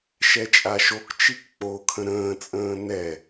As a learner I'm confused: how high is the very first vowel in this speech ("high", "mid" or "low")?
mid